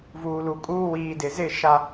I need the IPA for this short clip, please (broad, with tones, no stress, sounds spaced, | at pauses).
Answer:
v uː˨ l u˨ kʼ uː˦ w iː˨ d ɪ˨ z ɪ˦˨ ʃ a˦